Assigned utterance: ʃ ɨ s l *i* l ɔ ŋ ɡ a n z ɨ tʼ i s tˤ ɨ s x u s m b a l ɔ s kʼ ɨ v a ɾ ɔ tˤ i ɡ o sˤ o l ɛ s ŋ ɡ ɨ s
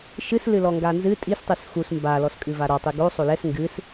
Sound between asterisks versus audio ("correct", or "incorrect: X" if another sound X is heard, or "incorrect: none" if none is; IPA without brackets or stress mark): incorrect: ɨ